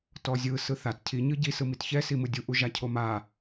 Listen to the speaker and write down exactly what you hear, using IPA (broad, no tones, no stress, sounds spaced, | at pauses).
t ɔ zʲ ɯ s ɯ θ a t cʰ i ɲ ɯ ɟ i s ɯ m i t ç ɛ s i m ɯ dʲ u ʔ u ʒ a cʰ o m a